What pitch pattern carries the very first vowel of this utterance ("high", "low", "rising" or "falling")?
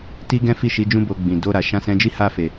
high